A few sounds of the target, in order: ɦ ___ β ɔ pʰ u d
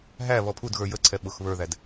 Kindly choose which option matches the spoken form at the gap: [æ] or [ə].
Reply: æ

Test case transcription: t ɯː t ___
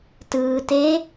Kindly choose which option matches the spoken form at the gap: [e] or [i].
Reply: e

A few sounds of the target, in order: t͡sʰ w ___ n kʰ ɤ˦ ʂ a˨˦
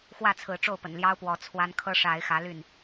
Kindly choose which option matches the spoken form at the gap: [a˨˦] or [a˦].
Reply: a˦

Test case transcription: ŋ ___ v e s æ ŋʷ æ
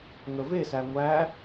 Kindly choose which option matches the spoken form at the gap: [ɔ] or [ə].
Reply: ə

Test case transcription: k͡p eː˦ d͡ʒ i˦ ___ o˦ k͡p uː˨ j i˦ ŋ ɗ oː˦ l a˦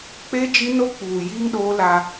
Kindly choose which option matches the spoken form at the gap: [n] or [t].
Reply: n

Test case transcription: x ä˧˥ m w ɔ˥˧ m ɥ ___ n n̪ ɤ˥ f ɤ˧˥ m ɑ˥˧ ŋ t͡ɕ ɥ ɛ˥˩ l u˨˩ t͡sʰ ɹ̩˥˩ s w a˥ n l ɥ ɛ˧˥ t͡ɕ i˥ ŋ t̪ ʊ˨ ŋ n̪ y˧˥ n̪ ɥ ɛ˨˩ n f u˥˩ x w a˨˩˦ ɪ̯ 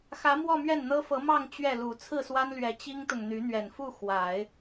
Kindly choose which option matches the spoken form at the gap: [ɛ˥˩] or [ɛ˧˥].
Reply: ɛ˥˩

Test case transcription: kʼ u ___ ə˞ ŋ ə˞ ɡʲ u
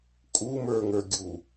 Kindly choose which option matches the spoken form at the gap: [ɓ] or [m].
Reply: m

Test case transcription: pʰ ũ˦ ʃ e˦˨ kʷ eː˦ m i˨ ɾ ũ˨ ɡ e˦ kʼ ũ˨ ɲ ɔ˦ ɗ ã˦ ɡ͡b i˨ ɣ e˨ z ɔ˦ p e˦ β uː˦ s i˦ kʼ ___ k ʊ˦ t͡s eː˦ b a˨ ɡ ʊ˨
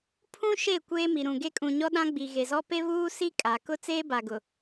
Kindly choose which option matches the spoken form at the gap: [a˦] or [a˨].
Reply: a˨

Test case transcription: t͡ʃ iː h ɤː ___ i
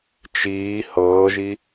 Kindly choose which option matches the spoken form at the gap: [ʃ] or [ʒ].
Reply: ʒ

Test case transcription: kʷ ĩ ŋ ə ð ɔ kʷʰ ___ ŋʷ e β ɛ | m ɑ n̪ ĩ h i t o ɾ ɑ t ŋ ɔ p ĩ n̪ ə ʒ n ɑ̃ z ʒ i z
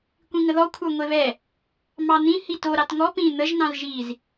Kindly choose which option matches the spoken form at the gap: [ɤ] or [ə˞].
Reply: ə˞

